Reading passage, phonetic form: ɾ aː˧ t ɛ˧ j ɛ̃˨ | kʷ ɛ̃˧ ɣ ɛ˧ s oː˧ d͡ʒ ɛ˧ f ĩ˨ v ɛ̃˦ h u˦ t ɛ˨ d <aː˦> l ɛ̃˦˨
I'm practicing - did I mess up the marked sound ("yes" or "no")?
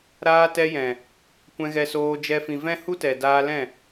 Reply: yes